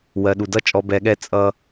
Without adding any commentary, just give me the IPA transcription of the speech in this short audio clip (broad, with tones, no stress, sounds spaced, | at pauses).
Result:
w ɜ˨ ɗ u˨ d ʌ˦ t͡ʃʼ ɔ˧ b ɛ˧ ɠ ɛ˦ t͡sʼ ʌ˦